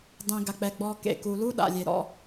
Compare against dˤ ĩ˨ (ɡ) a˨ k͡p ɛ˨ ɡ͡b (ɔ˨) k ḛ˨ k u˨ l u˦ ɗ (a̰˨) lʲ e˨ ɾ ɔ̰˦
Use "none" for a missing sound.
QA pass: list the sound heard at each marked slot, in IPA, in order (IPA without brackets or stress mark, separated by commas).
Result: ɡ, ɔ˨, a̰˨